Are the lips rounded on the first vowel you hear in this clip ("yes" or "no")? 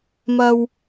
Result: no